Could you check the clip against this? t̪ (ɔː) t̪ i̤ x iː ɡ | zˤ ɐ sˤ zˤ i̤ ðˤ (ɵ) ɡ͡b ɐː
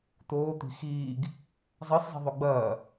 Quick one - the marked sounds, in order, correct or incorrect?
incorrect: oː, correct

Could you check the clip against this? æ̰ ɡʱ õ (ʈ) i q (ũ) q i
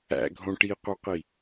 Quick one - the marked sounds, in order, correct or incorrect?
correct, incorrect: u

